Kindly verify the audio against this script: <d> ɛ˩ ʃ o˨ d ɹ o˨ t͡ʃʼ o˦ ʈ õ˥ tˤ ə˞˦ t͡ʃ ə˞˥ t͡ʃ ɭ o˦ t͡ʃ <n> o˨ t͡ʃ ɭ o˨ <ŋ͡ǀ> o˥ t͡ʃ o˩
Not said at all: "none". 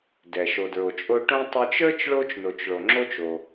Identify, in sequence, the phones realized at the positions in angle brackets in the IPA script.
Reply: d, n, ŋ͡ǁ

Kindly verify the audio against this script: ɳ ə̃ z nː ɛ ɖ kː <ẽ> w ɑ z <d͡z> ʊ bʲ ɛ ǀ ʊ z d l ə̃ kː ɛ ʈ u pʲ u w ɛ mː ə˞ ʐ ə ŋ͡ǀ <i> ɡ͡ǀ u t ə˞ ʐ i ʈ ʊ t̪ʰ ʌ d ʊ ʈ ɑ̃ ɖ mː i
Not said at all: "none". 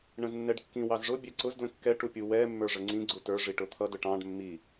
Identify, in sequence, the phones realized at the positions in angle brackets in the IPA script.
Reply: ĩ, ʐ, ĩ

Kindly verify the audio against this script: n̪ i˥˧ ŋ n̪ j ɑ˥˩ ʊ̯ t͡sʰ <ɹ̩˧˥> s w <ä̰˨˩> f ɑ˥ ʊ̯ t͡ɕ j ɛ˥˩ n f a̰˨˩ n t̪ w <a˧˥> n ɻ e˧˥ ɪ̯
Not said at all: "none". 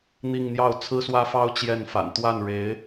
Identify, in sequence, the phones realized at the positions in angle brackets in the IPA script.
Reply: ɹ̩˥, ä˥, a˥˩

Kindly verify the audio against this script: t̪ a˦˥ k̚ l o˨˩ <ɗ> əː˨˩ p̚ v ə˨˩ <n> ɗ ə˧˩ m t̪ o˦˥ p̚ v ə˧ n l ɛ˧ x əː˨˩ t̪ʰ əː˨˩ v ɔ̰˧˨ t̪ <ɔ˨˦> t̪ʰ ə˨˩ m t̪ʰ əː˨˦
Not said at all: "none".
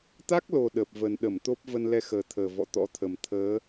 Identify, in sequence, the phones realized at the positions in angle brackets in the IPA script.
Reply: ɗ, n, ɔ̰˧˥

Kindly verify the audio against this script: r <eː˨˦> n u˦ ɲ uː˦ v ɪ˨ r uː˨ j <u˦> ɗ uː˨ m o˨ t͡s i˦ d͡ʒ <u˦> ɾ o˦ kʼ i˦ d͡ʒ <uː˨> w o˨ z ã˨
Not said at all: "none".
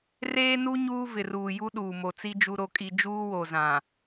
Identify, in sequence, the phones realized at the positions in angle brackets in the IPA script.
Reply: eː˦, u˦, u˦, uː˦

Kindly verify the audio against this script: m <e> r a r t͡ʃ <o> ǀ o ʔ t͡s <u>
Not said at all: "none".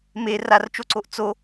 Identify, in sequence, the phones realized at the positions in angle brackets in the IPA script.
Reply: e, o, o

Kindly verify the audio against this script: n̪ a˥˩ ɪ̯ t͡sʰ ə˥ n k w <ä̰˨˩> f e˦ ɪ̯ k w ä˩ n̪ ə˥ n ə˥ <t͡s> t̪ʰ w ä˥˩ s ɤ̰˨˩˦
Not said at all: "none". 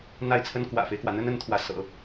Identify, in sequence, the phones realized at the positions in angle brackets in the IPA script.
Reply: ä̰˨˩, n

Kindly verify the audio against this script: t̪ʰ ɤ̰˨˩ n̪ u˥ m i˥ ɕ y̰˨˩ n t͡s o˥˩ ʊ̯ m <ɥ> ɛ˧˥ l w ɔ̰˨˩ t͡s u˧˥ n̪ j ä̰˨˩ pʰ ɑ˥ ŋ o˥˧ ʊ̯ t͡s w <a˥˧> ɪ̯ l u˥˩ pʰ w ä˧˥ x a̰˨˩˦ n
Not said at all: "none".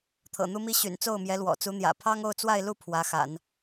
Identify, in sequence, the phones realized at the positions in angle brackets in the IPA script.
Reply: j, a˥˧

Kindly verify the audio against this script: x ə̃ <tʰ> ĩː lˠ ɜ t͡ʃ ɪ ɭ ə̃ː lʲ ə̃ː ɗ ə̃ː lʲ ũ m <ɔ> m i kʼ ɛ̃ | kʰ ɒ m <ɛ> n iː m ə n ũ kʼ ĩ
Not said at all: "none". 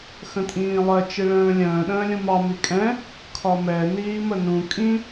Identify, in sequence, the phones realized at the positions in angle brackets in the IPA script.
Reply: tʼ, ɑ, ɛ

